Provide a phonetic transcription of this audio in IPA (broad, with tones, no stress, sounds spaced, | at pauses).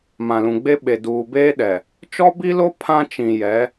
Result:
m ã˨ l ũ˨ ɡ͡b e˦ ɓ e˨ d uː˨ b eː˦ ɗ ɛ˨ | t͡ʃ ɔ˦ b i˦ l o˦ pʰ ã˦ t͡ʃ ĩ˨ j ɛ˨˦